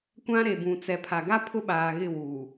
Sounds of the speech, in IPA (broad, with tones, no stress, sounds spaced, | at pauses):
kʷ ã˦ ɾ e˨ b ũ˨ t͡s ɛ˨ pʰ a˨ ɡ a˦ pʰ ʊ˦ ɓ aː˨ ɣ ɪ˦˨ w uː˨